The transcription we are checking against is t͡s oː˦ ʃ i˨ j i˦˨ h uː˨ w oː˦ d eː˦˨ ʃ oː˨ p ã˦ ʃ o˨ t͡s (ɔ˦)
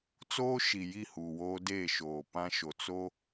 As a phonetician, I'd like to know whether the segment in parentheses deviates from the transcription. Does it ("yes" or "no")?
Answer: yes